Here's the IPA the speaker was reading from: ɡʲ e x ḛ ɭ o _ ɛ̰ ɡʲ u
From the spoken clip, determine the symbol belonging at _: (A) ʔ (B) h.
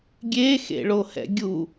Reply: B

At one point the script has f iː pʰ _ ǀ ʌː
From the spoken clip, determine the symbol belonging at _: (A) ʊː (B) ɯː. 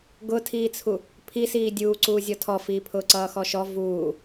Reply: A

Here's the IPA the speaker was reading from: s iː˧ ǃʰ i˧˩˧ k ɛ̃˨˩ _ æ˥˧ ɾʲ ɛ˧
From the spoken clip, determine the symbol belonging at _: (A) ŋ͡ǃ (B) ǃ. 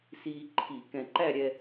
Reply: B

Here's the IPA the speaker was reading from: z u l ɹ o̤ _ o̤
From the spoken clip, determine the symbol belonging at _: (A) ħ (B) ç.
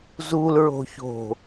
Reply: B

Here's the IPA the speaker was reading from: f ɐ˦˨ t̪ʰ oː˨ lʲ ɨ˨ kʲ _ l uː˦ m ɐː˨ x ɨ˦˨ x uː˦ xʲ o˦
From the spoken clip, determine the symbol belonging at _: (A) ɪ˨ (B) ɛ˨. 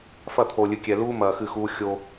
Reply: B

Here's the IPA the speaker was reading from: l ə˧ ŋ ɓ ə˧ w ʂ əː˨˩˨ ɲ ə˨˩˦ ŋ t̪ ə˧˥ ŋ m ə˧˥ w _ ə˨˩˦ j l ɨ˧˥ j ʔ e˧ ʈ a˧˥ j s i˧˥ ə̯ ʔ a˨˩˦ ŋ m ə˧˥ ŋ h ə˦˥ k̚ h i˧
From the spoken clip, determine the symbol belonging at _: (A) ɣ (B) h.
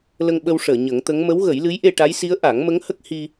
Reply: A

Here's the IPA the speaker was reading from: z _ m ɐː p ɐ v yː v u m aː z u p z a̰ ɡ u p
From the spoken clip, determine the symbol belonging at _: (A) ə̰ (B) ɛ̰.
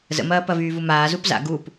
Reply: A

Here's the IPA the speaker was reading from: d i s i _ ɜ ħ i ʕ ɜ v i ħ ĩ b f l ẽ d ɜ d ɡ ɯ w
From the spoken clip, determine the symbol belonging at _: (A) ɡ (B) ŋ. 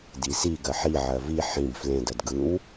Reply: A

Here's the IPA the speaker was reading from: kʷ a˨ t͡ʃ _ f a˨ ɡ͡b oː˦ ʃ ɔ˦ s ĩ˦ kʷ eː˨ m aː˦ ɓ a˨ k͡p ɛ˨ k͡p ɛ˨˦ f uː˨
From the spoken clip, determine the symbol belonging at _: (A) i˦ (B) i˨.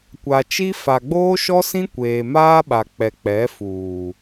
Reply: A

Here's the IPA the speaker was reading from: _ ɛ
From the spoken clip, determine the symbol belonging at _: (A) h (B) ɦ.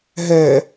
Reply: B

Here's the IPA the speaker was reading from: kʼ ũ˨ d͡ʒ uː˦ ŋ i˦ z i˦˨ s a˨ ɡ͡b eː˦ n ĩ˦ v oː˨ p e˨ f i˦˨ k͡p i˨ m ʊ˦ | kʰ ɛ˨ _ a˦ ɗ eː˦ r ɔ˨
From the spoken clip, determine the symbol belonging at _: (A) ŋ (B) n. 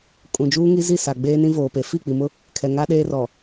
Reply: A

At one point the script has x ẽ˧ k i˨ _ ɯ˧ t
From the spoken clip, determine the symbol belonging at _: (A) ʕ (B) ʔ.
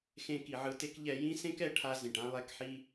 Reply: A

